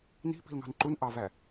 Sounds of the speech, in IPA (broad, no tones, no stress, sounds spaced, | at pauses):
n i̤ p i̤ l ŋ ɑ̤ n ǃ u n ʔ ɑ v æ